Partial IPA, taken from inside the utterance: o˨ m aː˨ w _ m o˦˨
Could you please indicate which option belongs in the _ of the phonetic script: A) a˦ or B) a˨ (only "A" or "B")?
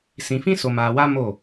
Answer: A